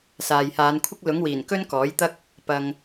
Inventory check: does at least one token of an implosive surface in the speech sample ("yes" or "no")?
no